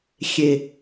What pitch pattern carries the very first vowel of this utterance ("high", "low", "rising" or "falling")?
low